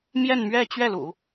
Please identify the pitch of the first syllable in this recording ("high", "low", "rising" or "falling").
falling